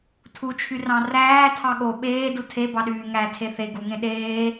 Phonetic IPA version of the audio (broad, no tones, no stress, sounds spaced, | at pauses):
tʰ u t͡ʃʰ y r ɑ̃ r æː tʰ ɑ ɠ o ɓ eː d u tʰ e b ɑ ɗ yː ŋ æ tʰ e θ e ɡ u ŋ ẽ ɗ eː